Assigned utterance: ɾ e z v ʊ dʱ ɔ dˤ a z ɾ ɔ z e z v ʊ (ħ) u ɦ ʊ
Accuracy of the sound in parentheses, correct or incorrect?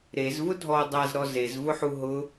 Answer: correct